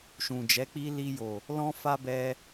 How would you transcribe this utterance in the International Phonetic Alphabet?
ʃũ˨d͡ʒɛ˨˦k͡pi˦ li˧jo˨ | lɔ̃˦ fa˦bɛ˧

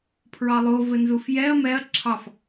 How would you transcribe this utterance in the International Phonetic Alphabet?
pʰɹɑlˠo vɘnzufjɛɐ̯ mɛɐ̯ ǁʰɑf

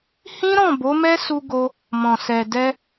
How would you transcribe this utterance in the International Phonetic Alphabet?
hĩ˦ɾɔ̃˦˨ bo˨˦mɛ˦su˧ɡo˧ | mɔ̃˨sɛ˨dɛ˧

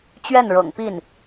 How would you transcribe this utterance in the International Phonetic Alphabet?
t͡ɕɥɛ˥˩nɻɤ̰˨˩ŋpi˥˩n

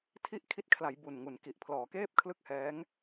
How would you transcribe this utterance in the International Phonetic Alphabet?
tʰi˥˩ʔ kʰi˦˥t̚kʰla˩˦j bu˨˩nŋu˨˩nki˨˩ʔ pʰlɔː˩˦keː˥˩p̚kʰlɯ˥˩k̚hɛː˦˥ŋ

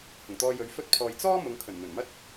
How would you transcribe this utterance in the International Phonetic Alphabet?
hʊ˨˩ŋt̪ɔː˧jɵ˨˧ɥ fɵ˥t̚pʰɔː˧j t͡sɔː˥ mʊ˨˧ŋkʰɵ˨˩nn̪ɵ˨˩nmɐ˥t̚

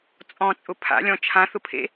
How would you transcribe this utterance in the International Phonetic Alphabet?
t͡sʼɔ̃t͡sʼʊ pʰa̰lʲɔ̃ t͡ʃʰãθʊpʰḛ

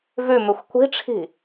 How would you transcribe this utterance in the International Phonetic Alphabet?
vʉmʉxʷ kʷi̤ʈ͡ʂʰi̤

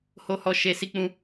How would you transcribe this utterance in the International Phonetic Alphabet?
ho˧hɔ˧ ʃe˧ si˧k͡pũ˧

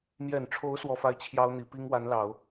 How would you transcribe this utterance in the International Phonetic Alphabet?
mjɛ˨˩nʈ͡ʂʰo˧˥ʊ̯ swɔ˥fa˥ɪ̯ t͡ɕʰjɑ˥ʊ̯n̪i˨˩ pi˥ŋwa˧˥nlɑ˨˩˦ʊ̯

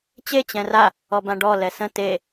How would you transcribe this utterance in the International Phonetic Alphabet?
t͡ɕe t͡ɕɛ̃ra | ɔbãɖɔ lɛsə̃ te

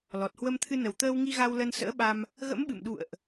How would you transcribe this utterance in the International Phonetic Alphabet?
lɔ˨˩t̚hwə˧mt̪ʰɨ˧ nə˨˩wt̪əː˧wŋi˧ ɣa˧wlə˧nsə̰ː˧˥ɓa˧m | ɣə̰˧˥mɓɨ̰˧˨mɗṵ˧˨ə̯ʔ

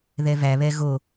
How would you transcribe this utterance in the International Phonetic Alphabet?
ðɛvæ βɛɣo

